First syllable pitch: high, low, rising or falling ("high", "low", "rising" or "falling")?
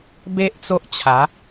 high